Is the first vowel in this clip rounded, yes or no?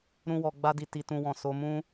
yes